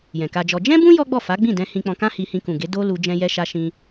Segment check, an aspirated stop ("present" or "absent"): absent